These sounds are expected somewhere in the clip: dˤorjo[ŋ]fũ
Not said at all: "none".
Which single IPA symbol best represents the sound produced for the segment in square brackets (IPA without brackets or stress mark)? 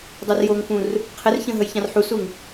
ŋ